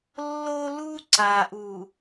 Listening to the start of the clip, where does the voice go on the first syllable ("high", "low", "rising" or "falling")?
high